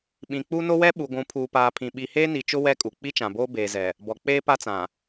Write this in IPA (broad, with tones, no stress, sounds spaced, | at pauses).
ɓ ĩ˨ k͡p u˦ n o˦ w ɛ˦ ɓ u˨ ɡʷ ũ˨˦ pʰ uː˨ p aː˨ pʰ ĩ˨ ɓ i˨ h eː˦ n i˨ t͡ʃ ʊ˦ w ɛ˦ kʼ u˨ k͡p i˦ t͡ʃ ã˨ b oː˦ b eː˨ z ɛ˨ | b ɔ˨ k͡p eː˦ p a˦ t͡s ã˨